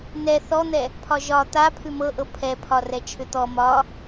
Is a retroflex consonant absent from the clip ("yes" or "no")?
yes